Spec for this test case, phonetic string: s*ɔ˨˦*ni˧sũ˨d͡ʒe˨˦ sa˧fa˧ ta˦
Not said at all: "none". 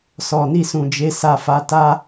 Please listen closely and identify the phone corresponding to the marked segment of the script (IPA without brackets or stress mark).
ɔ˨